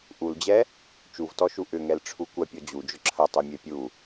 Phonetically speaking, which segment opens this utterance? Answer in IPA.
ʔ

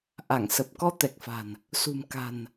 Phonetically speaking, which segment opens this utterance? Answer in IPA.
ʔ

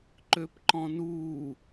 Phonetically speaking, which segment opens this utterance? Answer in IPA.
ǃ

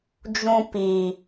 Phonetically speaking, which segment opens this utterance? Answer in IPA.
d͡ʒ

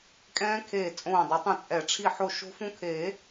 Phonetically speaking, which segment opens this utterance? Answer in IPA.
kʼ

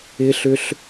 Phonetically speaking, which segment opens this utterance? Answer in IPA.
ɪ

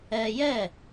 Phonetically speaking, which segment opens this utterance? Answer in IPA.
ɛ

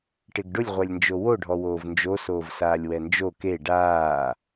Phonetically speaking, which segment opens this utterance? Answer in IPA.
ʈ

